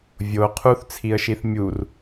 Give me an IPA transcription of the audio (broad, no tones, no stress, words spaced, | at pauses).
vʲo qʰuθt͡sʰiə̯ʃiθ mʲur